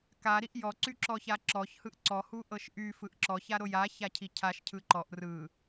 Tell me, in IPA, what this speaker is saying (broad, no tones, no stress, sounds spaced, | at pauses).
k a ɾ i ʔ j ɔ ǀ y ǁ ɔ ç a ǁ ɔ ç h ɯ ʔ ǀ ɔ h u ʔ ɤ ʃ ʔ y f ɯ ʔ ǁ ɔ ç a ɾ o j a ç a cʰ i cʰ a ʃ cʰ ɯ ǃ ɔ ʔ r ɯ